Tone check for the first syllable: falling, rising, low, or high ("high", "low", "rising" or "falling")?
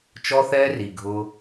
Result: high